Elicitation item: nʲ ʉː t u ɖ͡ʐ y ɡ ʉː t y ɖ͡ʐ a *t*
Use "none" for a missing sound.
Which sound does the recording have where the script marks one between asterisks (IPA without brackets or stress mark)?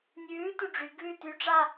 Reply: none